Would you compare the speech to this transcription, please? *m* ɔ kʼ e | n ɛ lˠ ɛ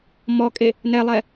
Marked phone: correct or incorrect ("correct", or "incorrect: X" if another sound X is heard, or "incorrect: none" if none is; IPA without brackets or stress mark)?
correct